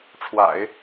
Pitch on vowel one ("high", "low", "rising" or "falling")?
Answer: low